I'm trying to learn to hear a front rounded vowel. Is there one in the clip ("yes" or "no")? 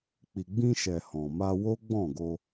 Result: no